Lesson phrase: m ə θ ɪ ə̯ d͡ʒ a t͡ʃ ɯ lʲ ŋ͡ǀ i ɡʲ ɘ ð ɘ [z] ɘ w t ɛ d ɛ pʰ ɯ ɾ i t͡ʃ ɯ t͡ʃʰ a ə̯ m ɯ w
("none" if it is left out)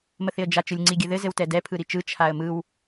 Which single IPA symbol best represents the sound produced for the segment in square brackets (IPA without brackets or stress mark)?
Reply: z